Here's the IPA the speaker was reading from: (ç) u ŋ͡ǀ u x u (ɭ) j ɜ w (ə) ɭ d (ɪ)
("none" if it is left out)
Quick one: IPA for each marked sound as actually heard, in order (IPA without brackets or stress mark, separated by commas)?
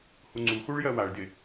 h, ɭ, a, ɪ